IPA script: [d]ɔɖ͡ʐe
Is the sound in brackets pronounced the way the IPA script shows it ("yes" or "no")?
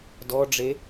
yes